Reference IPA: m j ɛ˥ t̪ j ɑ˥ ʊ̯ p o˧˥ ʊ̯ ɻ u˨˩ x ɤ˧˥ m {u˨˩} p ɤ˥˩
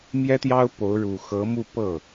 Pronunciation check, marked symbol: incorrect: u˥˧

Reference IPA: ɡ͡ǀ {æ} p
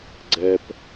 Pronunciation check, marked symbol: incorrect: ɛ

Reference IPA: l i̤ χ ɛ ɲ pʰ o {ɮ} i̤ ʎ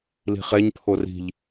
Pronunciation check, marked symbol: incorrect: r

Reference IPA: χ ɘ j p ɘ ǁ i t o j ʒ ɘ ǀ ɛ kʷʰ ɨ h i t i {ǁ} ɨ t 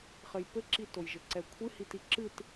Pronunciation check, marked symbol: correct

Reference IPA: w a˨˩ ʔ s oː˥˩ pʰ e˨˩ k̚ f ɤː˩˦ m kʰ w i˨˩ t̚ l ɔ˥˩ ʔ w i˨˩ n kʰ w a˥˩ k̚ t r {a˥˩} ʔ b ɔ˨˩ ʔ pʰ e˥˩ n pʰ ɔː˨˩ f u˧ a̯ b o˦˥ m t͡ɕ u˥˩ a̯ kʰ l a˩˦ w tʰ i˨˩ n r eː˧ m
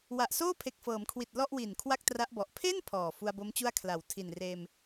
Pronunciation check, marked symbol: incorrect: a˦˥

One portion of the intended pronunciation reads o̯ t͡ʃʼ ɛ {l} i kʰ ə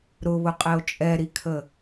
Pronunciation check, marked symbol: incorrect: ɾ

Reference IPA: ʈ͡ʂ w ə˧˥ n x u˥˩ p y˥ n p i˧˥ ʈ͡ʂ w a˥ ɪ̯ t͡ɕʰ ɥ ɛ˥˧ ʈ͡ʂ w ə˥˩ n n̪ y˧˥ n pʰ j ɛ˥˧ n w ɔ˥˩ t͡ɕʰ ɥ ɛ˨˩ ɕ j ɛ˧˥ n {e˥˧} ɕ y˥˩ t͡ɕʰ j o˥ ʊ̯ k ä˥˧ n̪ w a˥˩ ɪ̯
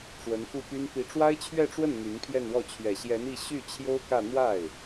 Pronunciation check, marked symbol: incorrect: i˥˧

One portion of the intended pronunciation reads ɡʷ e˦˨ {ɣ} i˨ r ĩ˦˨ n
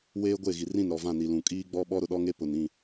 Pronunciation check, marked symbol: correct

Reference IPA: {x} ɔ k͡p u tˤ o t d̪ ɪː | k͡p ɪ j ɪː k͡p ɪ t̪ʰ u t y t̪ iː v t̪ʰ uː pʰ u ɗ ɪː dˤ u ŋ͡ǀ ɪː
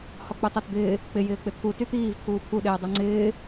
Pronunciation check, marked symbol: incorrect: h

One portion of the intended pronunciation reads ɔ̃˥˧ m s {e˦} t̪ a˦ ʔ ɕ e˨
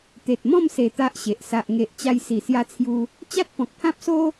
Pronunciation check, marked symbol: incorrect: e˨˩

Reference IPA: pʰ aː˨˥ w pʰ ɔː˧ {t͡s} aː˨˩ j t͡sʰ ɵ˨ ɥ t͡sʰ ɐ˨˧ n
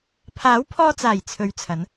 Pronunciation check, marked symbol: correct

